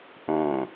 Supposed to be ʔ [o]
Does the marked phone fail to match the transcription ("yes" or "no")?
yes